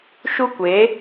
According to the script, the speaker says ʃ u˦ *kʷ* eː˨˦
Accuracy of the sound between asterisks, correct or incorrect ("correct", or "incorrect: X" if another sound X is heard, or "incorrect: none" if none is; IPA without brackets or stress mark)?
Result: correct